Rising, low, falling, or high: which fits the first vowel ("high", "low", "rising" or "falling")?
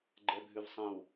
low